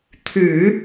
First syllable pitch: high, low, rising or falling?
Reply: low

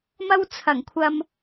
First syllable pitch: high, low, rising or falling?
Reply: high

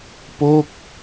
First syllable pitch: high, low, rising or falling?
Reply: falling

